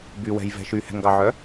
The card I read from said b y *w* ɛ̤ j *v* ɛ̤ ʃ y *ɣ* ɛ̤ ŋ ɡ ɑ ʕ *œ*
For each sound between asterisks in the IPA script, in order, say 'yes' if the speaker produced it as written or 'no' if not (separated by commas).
yes, yes, no, yes